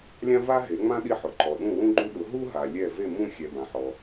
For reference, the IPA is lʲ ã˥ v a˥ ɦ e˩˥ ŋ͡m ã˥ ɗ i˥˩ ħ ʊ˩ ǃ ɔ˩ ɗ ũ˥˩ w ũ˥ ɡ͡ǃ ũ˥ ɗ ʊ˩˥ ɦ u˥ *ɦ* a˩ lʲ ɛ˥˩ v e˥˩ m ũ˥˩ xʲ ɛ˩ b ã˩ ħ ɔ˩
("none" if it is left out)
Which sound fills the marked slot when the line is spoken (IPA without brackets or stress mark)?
ɦ